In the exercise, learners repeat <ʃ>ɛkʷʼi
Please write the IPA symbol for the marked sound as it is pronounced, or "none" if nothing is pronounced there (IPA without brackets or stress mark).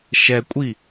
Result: ʃ